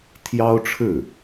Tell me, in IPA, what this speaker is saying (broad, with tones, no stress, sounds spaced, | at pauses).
t̪ʰ j ɑ˥ ʊ̯ ʈ͡ʂʰ ɻ̩˥˩